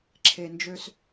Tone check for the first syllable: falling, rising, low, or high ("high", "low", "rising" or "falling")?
low